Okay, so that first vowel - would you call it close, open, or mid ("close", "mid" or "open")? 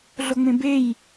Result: mid